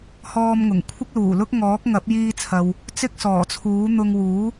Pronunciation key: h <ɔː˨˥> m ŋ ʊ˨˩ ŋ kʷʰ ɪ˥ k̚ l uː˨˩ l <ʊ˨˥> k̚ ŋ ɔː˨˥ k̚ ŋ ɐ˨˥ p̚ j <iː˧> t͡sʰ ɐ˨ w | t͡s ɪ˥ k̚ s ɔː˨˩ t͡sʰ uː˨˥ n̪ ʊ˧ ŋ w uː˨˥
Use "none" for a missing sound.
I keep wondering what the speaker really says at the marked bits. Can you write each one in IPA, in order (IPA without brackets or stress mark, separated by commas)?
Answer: ɔː˧, ʊ˥, iː˧